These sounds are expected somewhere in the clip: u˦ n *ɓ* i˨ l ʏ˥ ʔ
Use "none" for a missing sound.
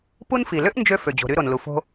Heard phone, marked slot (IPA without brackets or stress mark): f